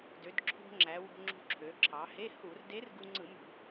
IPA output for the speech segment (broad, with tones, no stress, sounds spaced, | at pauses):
d ø˩˧ d ǁʰ o̤˧ ŋ͡ǁ æ˩˧ w o̤˧ ŋ͡ǁ ṳ˧ ǁʰ ø˩˧ ǁʰ ɑ˩˧ h e˧˥˧ h u˧˩˧ r d e˧˥ r ɡ u˧ ŋ͡ǀ ɯ˧˩˧ m ṳ˧˩˧